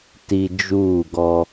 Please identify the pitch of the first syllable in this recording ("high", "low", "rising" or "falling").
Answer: low